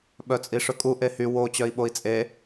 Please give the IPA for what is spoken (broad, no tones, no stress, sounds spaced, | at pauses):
ɓ œ t͡sʼ i ʂ ɵ kʼ u ʔ e h y w o t͡ɕ œ i̯ ɓ o i̯ t͡sʼ e